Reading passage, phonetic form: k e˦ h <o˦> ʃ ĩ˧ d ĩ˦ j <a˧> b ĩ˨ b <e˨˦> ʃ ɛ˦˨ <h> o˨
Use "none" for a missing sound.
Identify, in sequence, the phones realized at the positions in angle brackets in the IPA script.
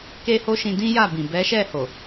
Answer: o˦, a˦˨, ɛ˨˦, h

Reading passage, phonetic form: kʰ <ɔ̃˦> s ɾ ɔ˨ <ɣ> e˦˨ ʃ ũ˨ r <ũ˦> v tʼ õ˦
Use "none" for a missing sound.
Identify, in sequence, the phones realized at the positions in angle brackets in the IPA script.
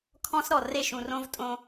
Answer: ɔ̃˦, r, õ˦

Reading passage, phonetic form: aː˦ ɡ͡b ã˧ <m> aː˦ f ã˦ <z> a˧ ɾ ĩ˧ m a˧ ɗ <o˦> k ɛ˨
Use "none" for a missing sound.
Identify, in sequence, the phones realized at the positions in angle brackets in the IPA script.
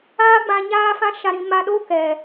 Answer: ɲ, ʃ, o˦

